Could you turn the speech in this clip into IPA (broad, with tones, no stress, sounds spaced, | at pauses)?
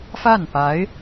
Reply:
f a˥˩ n p a˧˥ ɪ̯